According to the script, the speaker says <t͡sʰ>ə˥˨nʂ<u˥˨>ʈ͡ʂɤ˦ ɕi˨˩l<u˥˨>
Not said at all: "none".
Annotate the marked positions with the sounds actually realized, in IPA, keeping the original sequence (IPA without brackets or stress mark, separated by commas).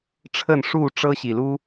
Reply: ʈ͡ʂʰ, u˥˨, u˦